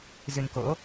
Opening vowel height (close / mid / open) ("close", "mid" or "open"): close